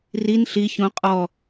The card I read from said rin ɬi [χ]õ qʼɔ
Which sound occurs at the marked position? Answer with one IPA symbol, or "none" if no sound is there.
ç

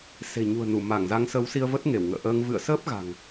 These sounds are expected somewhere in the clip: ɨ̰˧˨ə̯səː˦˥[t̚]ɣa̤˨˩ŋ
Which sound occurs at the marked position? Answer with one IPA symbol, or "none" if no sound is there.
p̚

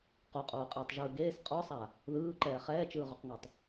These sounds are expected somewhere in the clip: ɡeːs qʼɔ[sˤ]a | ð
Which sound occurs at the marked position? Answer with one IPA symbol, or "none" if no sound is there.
sˤ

